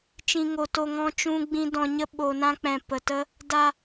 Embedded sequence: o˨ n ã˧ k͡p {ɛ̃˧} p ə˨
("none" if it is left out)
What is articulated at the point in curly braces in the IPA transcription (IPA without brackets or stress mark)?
ɛ̃˨